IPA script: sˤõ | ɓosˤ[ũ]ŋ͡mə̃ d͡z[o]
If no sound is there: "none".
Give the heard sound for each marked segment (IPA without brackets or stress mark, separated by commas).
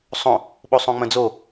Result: õ, o